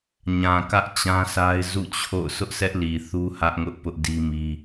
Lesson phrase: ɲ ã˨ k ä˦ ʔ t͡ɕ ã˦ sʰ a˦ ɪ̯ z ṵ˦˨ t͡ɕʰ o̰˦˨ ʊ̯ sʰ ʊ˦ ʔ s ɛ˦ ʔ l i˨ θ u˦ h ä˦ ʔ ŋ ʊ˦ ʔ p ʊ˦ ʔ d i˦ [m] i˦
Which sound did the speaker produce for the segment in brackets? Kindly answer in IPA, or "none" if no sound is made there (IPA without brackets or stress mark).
m